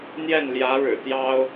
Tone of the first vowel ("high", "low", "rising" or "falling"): falling